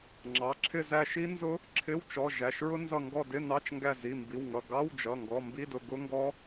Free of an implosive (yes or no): yes